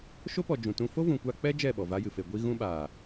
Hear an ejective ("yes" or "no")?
no